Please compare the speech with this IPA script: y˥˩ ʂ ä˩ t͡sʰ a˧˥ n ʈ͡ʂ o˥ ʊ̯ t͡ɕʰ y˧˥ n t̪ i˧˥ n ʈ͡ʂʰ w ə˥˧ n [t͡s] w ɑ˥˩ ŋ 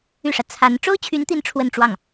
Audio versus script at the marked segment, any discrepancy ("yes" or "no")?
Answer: yes